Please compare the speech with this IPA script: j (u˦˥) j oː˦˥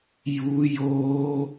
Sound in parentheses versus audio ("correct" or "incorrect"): correct